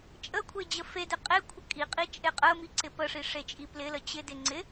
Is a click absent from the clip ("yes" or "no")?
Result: no